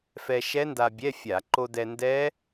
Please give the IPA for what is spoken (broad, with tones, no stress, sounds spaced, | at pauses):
f ɛ˧ ʃ ɛ˦˥ n d a˧ bʲ ɛ˧˥˧ fʲ a˧˩˧ ǃ o˧ d ɛ˧ n d ɛ˦˥